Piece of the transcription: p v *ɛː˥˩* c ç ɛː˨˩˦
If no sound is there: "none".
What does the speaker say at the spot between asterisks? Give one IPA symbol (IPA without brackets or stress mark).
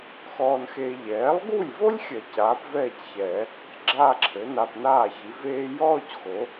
ɛː˥˩